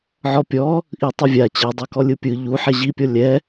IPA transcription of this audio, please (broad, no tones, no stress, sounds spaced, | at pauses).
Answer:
ʕ ɔ pʲ ɔ | ʔ i tˤ ɯ vʲ a t͡ɕ e dˤ ɤ k ɔ lʲ ɯ pʲ ɯ ʎ u ħ ɛ ʑ i pʲ ɔ lʲ ɛ